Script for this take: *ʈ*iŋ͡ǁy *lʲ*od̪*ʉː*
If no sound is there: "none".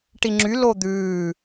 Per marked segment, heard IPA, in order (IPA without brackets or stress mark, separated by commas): ʈ, l, ʉː